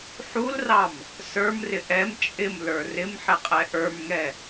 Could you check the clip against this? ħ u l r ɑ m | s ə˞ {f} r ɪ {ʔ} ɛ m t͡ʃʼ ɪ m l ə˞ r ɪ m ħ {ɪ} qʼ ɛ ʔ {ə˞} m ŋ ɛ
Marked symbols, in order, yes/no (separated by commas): no, yes, yes, yes